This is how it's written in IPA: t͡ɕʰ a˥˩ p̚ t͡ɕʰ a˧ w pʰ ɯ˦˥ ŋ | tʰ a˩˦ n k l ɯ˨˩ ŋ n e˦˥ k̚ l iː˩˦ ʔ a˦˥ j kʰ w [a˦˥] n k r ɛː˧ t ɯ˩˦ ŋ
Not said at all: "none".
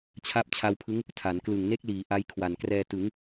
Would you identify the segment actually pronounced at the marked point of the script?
a˨˩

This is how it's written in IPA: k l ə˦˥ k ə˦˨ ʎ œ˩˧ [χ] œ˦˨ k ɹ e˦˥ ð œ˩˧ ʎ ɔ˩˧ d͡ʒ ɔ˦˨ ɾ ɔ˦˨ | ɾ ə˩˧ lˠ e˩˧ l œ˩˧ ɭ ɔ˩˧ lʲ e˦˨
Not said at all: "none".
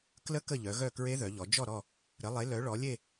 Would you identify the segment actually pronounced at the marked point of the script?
ɣ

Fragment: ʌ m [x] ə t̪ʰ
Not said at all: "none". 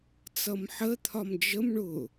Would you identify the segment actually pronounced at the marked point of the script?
ħ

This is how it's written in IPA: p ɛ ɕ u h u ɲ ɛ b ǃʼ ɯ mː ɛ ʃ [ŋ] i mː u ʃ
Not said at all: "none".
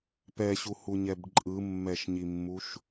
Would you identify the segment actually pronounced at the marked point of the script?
ɲ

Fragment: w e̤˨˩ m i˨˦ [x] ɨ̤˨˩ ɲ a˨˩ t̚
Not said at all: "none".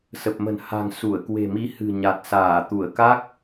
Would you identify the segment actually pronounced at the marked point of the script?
h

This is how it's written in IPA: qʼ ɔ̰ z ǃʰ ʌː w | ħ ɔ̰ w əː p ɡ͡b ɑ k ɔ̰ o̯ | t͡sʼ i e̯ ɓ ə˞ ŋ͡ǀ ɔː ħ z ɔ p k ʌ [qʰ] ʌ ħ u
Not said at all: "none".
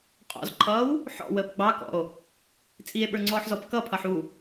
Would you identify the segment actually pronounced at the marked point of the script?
pʰ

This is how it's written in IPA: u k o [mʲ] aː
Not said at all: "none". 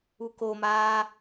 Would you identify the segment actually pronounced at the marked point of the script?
m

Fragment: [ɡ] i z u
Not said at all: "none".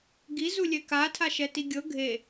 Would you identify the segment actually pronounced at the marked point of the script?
ɡ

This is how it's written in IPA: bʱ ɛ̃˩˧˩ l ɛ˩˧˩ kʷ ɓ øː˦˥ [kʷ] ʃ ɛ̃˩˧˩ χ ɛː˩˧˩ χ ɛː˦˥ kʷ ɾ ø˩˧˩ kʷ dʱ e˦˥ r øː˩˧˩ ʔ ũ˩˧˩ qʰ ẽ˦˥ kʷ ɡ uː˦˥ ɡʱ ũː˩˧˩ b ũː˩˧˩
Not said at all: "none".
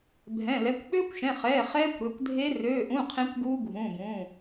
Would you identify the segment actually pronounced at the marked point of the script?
kʷ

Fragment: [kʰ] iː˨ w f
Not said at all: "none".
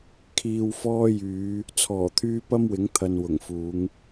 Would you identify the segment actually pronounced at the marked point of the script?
kʰ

